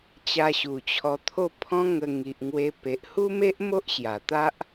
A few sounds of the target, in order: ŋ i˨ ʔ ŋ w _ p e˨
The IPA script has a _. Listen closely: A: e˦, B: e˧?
B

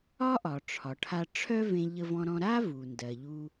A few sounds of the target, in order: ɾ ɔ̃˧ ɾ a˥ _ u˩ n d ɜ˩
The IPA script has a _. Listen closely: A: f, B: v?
B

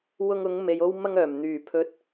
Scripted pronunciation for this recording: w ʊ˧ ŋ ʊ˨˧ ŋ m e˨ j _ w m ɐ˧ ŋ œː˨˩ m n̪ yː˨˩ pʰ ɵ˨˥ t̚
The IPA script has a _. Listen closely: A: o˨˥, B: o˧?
B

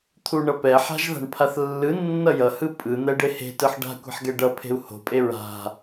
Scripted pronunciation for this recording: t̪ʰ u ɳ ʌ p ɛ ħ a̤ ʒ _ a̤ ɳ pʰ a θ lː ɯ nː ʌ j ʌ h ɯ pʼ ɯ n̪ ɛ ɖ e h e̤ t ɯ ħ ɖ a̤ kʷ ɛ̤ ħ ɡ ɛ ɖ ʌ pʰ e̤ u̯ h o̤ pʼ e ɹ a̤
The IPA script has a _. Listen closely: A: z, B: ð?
B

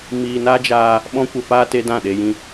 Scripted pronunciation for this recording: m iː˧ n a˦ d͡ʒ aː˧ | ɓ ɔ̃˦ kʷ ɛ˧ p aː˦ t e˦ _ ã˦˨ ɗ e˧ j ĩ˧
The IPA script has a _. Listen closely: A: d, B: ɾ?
A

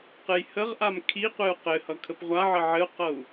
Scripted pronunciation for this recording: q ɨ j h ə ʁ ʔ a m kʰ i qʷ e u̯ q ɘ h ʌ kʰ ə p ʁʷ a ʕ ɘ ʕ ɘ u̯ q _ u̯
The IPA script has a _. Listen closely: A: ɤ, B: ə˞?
A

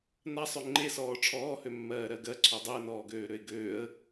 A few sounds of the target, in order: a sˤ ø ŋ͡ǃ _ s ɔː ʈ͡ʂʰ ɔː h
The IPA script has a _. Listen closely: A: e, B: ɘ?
A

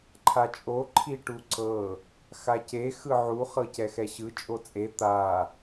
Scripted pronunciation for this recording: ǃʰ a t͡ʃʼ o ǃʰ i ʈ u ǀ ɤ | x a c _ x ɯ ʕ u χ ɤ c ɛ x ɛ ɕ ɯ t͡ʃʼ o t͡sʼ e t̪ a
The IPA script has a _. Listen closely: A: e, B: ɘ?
A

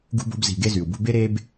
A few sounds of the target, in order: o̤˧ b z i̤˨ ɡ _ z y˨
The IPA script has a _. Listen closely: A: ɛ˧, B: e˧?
B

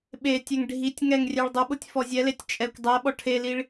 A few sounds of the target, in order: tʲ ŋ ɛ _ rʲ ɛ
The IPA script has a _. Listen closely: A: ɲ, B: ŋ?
B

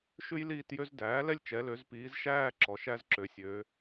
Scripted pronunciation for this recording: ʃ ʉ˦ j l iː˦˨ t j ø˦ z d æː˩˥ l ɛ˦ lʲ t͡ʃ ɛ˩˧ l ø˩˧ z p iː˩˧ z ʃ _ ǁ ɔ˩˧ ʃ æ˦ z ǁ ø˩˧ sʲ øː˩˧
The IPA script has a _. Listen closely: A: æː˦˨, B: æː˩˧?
A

